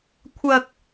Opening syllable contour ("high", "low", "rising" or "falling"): low